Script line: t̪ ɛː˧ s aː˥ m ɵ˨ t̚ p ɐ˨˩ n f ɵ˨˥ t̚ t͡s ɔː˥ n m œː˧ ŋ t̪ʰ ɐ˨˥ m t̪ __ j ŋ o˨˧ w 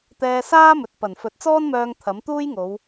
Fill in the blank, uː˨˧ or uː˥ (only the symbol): uː˥